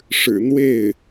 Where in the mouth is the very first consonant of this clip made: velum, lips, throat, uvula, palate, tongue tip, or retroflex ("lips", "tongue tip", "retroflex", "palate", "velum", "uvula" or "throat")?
retroflex